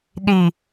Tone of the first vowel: low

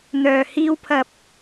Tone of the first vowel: low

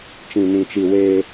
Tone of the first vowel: low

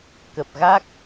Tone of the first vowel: low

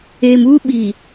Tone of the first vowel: low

